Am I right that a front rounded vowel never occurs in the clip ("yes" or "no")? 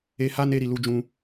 yes